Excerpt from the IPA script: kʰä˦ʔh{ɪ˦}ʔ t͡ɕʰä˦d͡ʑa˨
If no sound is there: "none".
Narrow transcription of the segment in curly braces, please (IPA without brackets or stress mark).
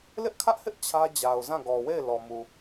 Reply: ɪ˦